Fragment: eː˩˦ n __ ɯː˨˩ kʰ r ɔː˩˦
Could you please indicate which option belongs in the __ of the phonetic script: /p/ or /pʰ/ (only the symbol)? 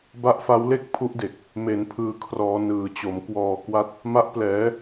pʰ